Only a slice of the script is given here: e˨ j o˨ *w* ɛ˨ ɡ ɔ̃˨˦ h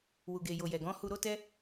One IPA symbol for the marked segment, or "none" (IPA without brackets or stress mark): j